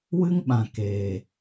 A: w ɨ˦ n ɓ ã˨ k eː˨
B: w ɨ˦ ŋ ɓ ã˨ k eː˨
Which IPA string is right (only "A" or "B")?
B